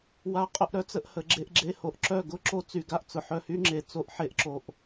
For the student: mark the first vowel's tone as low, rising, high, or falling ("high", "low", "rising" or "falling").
rising